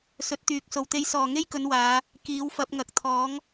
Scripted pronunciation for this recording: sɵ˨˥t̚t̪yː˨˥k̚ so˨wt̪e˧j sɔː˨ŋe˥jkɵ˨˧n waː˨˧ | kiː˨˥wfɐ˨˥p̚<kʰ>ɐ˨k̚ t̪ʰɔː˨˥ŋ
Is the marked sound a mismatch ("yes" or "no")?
yes